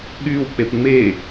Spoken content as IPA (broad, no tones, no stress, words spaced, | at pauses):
ɠyw k͡pepŋ͡me